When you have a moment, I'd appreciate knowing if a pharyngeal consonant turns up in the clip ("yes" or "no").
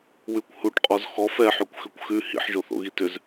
yes